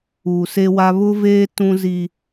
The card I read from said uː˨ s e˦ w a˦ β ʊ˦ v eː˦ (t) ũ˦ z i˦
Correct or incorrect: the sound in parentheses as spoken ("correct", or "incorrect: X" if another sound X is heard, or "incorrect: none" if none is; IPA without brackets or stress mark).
correct